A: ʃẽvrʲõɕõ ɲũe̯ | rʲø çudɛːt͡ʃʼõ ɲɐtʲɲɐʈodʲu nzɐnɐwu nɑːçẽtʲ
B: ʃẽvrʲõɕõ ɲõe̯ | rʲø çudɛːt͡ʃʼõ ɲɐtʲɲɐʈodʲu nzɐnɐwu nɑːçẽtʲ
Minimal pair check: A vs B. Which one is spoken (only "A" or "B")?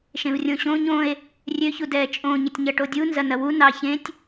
B